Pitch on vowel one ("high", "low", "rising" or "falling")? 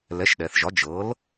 rising